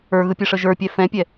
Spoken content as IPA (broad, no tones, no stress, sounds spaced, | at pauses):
ə˞ ɣ ɯ pʲ ɯ ʂ ə ʒ ə˞ pʲ ɛ f ɛ̃ pʲ ɛ